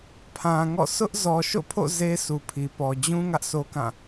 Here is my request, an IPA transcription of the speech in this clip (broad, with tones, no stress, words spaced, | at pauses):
pʰã˨ŋɔ̰˦˨ sʰʊ˦ʔ zɔ˨ʃo̰˦˨pʰo̰˦˨ ze˦su˨pʰi˨ pɔ˨ d͡ʑũ˦ ŋä˦ʔsʰo˦kã˦˨